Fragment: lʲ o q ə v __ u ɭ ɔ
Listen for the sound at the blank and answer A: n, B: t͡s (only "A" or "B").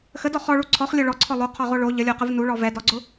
A